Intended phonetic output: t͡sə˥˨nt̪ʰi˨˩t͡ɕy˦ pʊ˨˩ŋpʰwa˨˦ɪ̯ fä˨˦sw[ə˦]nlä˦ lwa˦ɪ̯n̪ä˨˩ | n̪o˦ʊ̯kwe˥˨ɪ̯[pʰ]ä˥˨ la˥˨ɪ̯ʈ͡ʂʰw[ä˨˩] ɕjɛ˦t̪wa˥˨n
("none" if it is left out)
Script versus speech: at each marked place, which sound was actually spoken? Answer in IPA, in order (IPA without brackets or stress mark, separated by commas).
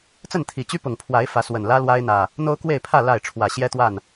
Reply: ə˨˩, pʰ, ä˨˩